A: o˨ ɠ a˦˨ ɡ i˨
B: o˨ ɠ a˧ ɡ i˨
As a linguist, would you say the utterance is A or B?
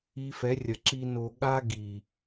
B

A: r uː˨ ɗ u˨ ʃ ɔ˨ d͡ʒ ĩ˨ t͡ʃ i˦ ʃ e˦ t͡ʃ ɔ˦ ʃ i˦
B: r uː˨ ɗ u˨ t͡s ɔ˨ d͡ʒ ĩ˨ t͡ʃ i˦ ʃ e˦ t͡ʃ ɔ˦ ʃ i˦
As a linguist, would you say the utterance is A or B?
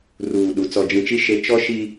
B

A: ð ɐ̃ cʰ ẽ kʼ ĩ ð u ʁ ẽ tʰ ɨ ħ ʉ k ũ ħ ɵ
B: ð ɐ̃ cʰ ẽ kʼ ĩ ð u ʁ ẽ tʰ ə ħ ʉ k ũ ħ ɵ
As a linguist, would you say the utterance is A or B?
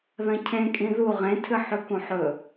A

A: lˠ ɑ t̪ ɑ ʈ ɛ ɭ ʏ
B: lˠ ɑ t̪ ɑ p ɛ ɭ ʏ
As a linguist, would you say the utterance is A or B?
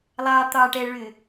A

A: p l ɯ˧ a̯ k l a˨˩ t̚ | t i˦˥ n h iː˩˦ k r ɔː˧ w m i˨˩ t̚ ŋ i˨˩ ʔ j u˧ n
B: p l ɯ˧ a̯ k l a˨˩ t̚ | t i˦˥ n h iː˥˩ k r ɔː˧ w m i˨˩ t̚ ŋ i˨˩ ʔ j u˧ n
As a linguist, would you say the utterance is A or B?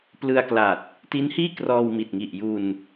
B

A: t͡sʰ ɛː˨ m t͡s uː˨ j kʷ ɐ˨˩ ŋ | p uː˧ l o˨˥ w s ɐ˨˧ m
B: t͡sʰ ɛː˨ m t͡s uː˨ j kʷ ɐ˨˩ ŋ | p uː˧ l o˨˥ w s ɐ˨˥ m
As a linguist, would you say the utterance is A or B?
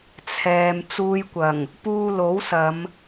A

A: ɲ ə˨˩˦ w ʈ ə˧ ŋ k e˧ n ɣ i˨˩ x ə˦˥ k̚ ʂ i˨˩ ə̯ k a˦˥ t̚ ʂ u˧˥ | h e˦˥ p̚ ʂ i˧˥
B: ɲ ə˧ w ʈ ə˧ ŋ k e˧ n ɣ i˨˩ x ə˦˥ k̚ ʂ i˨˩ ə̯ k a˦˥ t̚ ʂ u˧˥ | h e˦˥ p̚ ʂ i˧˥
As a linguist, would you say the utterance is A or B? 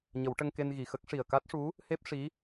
A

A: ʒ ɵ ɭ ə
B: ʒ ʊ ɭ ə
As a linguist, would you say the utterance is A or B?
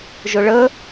B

